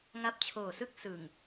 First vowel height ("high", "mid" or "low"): low